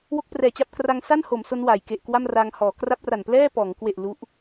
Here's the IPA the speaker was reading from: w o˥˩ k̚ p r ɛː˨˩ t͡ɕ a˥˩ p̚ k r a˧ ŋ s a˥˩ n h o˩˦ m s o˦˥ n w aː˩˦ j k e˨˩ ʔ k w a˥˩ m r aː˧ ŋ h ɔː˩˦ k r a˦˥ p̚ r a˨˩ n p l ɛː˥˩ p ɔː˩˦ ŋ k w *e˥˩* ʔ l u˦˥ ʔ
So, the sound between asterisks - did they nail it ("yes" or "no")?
no